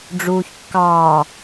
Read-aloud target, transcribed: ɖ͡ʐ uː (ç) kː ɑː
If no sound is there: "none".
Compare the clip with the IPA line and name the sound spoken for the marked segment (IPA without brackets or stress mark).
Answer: ç